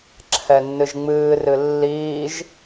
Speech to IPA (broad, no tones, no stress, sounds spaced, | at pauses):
ǁʰ ɛ nː ɨ ʒ ŋ͡m ɨː r ɨ lː iː ʒ